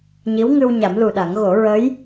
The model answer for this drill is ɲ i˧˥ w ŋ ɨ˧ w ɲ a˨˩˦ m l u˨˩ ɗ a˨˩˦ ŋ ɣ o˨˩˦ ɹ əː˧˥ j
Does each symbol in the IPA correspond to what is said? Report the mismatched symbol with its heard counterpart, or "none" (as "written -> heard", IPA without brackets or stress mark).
none